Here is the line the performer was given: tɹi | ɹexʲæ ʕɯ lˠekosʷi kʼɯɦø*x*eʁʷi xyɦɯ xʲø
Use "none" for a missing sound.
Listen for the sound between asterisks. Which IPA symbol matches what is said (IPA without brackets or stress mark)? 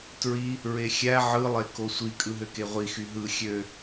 k